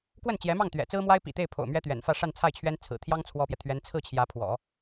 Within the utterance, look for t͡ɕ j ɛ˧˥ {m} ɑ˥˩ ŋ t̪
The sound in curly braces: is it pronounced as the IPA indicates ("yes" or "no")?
yes